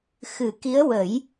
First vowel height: high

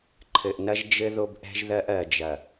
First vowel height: mid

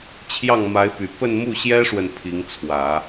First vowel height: low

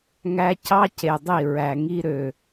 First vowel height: low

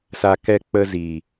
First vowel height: low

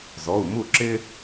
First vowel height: mid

